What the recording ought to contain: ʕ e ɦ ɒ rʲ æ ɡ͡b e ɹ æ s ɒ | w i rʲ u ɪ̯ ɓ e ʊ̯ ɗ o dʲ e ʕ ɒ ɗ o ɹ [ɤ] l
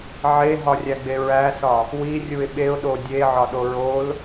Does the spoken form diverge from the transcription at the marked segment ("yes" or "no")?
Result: yes